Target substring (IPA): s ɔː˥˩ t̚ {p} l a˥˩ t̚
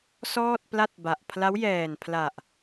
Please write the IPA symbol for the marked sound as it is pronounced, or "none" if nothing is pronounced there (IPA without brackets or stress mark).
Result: p